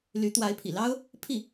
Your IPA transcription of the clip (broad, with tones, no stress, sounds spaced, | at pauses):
l y˧˥ t̪ w a˧˥ ɪ̯ pʰ ḭ˨˩ l ɑ˥ ʊ̯ | pʰ i˥˩